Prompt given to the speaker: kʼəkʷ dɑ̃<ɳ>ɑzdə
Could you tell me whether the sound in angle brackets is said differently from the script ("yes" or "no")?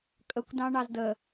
no